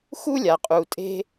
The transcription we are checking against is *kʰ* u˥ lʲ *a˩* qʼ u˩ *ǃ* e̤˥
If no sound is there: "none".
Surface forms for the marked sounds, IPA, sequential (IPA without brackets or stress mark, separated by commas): x, a˩, tʼ